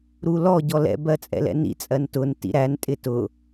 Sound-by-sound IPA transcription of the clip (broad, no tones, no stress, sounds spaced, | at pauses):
ɾ u l ɔ ɟ ɔ l ɛ̰ b ɜ t͡sʼ ɛ̰ l ɛ̰ n ḭ t͡sʼ ɜ n t ʊ n t ḭ ɾ æ n tʼ ɪ t ʊ